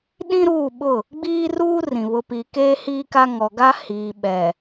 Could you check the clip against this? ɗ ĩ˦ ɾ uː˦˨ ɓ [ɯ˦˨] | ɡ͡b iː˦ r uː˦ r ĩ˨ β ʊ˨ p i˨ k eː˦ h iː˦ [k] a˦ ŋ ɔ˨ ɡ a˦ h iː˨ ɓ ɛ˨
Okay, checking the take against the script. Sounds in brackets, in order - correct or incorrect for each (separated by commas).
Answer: incorrect, correct